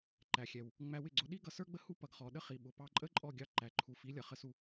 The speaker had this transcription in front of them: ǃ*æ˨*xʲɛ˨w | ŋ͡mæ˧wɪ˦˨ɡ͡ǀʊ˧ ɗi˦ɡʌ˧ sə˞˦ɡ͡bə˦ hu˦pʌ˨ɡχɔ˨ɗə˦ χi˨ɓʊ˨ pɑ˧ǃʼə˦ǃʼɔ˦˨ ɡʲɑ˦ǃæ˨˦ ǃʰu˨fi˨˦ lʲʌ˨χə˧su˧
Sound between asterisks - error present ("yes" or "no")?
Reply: no